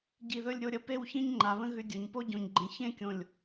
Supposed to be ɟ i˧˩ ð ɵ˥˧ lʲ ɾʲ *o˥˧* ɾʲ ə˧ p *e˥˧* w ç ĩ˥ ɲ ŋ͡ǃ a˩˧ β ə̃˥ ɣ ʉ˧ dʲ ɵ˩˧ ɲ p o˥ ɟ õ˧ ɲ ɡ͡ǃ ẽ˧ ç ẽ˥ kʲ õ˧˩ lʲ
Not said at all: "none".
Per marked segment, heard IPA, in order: o˥˧, e˥˧

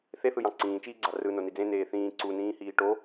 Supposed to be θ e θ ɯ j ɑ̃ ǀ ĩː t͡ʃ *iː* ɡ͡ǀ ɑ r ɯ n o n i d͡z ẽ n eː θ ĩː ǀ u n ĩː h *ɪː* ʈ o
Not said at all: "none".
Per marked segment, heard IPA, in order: iː, iː

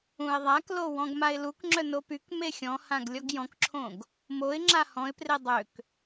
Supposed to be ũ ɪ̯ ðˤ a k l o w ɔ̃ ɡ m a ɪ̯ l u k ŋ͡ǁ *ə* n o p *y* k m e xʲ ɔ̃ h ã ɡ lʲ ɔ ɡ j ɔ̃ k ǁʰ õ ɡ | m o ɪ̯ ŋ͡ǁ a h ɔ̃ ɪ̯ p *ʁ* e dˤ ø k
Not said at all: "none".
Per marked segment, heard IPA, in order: œ, y, r

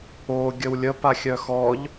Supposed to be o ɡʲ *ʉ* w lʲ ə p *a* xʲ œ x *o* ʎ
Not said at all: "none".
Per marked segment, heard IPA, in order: ə, a, ɔ

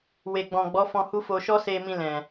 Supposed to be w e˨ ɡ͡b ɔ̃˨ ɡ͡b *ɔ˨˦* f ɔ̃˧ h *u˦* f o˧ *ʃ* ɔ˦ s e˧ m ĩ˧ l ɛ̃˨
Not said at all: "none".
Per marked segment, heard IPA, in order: ɔ˨˦, u˦, ʃ

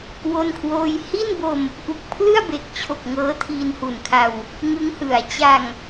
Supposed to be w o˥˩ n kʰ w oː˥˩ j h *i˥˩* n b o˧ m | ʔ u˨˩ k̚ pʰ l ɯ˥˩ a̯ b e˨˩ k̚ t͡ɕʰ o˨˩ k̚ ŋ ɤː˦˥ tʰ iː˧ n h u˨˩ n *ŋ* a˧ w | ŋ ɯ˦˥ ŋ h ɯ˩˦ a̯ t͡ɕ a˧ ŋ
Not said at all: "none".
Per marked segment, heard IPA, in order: i˥˩, kʰ

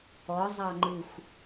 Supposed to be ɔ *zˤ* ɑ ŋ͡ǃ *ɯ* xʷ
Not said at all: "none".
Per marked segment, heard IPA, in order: zˤ, ɯ

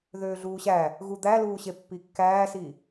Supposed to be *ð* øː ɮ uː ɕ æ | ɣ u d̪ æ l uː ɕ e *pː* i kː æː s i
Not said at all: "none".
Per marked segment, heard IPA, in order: ð, pː

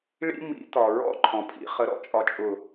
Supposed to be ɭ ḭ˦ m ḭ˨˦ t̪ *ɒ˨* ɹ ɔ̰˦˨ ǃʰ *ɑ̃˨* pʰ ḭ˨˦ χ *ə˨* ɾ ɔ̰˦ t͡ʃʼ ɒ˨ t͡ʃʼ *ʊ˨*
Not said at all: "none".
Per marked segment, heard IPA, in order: ɒ˨, ɔ̃˨, ə˨, ʊ˨

